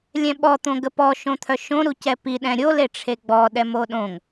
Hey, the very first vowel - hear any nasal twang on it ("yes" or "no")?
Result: yes